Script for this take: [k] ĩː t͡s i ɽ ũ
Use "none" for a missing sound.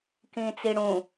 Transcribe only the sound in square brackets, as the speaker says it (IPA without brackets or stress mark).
k